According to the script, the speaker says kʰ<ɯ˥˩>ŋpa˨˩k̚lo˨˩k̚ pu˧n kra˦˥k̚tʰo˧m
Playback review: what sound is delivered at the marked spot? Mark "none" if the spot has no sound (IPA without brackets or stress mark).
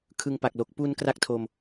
ɯ˧